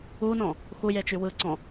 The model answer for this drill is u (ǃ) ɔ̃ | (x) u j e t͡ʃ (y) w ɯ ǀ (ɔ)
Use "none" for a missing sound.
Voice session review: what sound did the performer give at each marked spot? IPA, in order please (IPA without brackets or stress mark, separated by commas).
n, x, y, ɔ̃